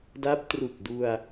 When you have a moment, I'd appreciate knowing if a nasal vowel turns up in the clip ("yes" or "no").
no